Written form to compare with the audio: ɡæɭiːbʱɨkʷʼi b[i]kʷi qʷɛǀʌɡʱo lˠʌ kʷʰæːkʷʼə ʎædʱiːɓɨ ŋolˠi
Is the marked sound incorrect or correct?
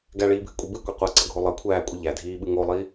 incorrect